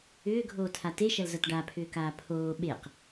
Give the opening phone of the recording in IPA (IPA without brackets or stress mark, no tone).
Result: ʏː